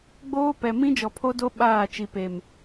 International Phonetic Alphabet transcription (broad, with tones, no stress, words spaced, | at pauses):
ɡ͡boː˦pɛ˨ mĩ˦ d͡ʒɔ˨pʰo˦do˦ ɓaː˦˨t͡ʃi˨pe˨m